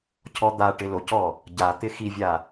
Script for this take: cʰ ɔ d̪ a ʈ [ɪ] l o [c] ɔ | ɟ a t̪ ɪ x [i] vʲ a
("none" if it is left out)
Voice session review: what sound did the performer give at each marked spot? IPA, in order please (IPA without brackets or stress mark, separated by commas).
ɪ, c, i